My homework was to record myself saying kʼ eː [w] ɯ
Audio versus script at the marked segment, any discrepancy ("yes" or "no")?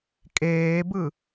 yes